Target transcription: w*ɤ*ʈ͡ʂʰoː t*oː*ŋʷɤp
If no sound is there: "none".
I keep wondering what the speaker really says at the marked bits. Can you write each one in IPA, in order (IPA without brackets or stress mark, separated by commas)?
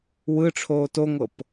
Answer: ɯ, o